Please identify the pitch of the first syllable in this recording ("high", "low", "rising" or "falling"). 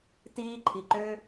high